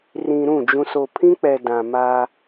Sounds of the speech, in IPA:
r ĩ˨ ɾ ũ˦˨ d͡ʒ ũ˨ s o˨ pʰ ĩ˦ k͡p ɛ˨ d ã˨ m aː˦

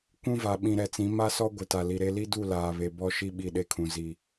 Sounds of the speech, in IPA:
kʷ ũ˦ v a˨ ɓ ĩ˨ ɾ ɛ˨ t͡s ĩ˨˦ m a˦ s ɔ˦ ɡʷ ɪ˨ t a˨ l i˨ ɾ e˦ l i˦ d u˦˨ l aː˨ β e˨ b ɔ˦ ʃ i˦ ɓ i˦˨ ɗ e˦ kʰ ũ˨ z i˨

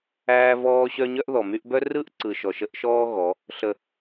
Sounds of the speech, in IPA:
æː˦ v ɔː˦ ɕ œ˦ ɲ œ˦ ʔ ð ɔ˨ m y˦ ʔ b œ˦ r ɯ˦ ʔ ǀ ɯ˨ ʃ ɔ˨ ʃ ə˦ ʔ ʃ ɔː˦ ɣ ɔ˨˦ | ɬ ə˨

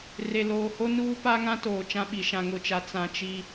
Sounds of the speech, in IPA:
r e˨ l oː˨ h o˦ n uː˦ p a˦ ŋ ã˦ t oː˨ t͡ʃ ã˦ ɓ i˨ ʃ ã˨ ŋ ʊ˨ t͡ʃ a˨ t͡s ã˨ t͡ʃ i˦

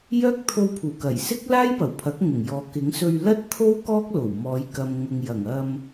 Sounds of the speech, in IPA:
j œː˥ k̚ t̪ʰ o˧ w pʰ uː˨˩ k ɐ˨˩ j s ɪ˥ k̚ l aː˥ j p ɐ˨˩ w pʰ ɐ˨˥ k̚ ŋ ʊ˨˩ ŋ j ɔː˨ k ɪ˨˥ ŋ s ɵ˧ ɥ l ɐ˥ t̚ t̪ʰ o˥ w k ɔː˥ k̚ l o˨˩ w m ɔː˨˧ j k ɐ˨ m ŋ ʊ˨ ŋ j ɐ˨˩ ŋ ɐ˧ m

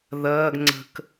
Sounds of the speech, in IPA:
ð ɐː ɡ ŋ͡ǀ ə̤ k

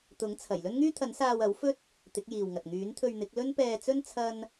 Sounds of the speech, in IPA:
t̪ ʊ˨˥ ŋ t͡sʰ ɐ˨˩ j l ɵ˥ n ŋ yː˥ t̪ʰ ɐ˨˥ n s aː˧ w ɐ˨˥ w f ɵ˥ t̚ | t̪ ɪ˨˥ k̚ j iː˨ w ŋ ɐ˨ t̚ ŋ yː˨˥ n t̪ʰ ɵ˧ ɥ n̪ ɪ˨˥ k̚ l ɵ˥ n p ɛː˧ t͡s ɵ˥ n t͡sʰ ɐ˥ n

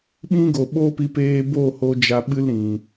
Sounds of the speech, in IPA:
ɓ ĩ˦ ɡ o˨ ɓ o˦ p i˧ p eː˧ b o˦˨ h o˧ d͡ʒ a˧ ɓ ɨ˦ l ɾ ĩ˨

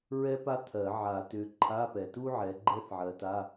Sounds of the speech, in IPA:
ɹ ɛ˥ p a˥ t̪ʰ ɜ˨˩˦ ʕ a˨˩˦ t ʏ˨˦ ǃʰ a˧˥˧ p ɛ˨ t u˥ ʕ ɛ˨˦ ɡ͡ǃ ɛ˥ θ ʕ ɜ˨˦ t a˧˥˧

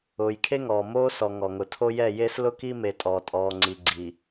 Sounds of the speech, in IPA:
ʊː˨ j kʰ e˦ ŋ ɔː˨ m oː˦ s ɔ˨ ŋ ɔ˨ ŋ ʊ˨ tʰ o˦ j ɛ˦˨ j e˦ s l ʊ˦ k i˦ m e˨ tʼ ɔː˨ tʼ ɔː˨ ŋ͡ǀ i˨ ɡ͡ǀ i˨

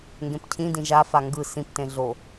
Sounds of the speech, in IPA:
ŋ ɡ ẽ p cʰ ĩ d ĩ ʒ a f a ŋ ɡ ɯ s ĩ p t ẽ ɮ o

